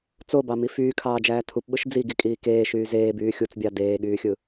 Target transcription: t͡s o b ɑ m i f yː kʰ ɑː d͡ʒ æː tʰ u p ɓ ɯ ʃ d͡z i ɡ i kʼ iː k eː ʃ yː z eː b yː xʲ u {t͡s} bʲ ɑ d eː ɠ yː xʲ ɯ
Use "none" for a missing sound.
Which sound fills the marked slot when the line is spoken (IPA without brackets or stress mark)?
t͡s